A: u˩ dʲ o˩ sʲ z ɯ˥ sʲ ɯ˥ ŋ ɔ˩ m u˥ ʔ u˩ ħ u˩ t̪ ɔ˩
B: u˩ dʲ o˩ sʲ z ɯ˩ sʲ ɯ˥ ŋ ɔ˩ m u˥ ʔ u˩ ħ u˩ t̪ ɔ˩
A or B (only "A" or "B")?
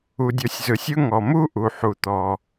B